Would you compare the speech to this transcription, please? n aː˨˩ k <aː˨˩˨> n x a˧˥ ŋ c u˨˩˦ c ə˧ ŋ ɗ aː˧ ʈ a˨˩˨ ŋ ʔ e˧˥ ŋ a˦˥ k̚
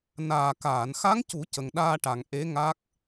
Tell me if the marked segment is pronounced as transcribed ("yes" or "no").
yes